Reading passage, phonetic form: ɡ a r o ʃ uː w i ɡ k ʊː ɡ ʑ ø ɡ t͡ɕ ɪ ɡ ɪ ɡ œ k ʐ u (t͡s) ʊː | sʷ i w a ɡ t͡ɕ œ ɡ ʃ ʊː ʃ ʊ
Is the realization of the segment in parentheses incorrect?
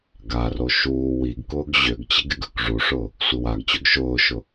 yes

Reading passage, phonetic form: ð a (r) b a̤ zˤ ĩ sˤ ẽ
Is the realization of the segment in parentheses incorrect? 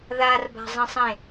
no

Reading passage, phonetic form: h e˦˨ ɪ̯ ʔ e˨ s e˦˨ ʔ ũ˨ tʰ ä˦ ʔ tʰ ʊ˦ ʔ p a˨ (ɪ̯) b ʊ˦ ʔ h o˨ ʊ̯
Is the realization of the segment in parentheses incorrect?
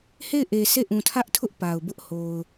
yes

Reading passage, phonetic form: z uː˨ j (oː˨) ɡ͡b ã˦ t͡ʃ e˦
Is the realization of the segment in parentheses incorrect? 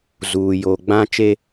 yes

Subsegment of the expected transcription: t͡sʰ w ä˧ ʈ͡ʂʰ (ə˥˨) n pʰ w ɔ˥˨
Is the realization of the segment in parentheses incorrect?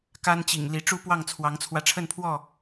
no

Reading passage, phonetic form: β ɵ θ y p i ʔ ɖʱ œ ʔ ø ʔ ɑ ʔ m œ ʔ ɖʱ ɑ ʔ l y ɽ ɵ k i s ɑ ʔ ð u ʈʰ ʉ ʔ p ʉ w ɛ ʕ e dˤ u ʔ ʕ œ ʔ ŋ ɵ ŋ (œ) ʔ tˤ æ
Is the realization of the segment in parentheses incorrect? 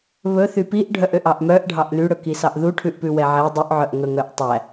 no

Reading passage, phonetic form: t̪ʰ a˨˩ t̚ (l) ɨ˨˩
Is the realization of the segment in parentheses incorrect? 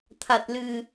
no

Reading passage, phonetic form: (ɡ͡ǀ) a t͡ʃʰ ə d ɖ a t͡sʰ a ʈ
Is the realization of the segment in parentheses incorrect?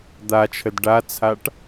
yes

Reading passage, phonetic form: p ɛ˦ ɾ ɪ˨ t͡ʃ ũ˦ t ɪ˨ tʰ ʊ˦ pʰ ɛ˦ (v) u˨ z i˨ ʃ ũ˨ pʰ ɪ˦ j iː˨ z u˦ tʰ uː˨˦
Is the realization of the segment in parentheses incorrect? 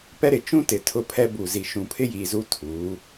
yes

